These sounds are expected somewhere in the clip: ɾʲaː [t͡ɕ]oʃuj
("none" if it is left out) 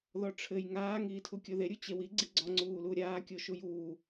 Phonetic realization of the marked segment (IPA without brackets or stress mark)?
kʲ